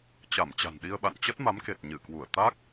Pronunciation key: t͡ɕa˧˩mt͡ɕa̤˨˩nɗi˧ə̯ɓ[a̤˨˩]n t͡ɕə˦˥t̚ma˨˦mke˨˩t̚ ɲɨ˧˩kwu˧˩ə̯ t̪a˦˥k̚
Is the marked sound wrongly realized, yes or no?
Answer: yes